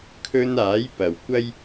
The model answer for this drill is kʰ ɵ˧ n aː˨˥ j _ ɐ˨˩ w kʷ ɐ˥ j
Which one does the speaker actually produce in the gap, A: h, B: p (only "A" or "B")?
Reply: B